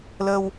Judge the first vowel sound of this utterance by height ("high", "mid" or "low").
mid